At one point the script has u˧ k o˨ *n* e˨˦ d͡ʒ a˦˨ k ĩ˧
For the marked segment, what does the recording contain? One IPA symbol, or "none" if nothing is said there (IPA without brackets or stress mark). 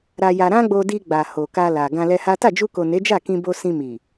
n